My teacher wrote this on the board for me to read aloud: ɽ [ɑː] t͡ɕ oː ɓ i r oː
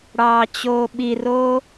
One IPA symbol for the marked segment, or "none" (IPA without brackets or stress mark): ɑː